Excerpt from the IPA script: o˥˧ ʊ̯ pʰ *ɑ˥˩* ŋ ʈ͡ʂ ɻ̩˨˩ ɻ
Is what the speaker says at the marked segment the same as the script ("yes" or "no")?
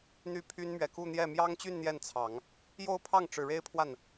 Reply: yes